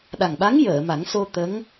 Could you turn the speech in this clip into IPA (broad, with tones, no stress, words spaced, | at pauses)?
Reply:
ɗa˨˩ŋɓa˧˥ŋ jəː˨˩˨ma˨˩˦ŋso˧ t̪ə˧˥ŋ